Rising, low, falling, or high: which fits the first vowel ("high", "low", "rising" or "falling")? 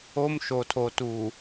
high